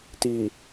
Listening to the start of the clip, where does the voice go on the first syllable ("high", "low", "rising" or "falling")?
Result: low